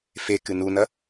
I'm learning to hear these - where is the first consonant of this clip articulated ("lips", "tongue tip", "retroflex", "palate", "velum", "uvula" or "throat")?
lips